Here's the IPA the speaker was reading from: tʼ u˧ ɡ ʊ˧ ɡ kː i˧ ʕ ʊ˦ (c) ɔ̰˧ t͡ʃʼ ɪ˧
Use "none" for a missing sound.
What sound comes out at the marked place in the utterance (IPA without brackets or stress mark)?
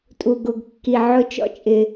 t͡ʃ